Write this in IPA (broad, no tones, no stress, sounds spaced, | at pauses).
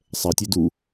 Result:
sˤ ɛ tʲ e d u